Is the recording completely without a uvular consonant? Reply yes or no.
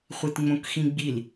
no